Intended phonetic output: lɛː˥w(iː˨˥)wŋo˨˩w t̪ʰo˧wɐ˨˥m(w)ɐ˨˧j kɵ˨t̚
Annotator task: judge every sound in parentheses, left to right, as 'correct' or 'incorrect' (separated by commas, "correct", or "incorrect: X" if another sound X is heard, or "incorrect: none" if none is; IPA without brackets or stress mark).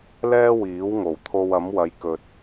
correct, correct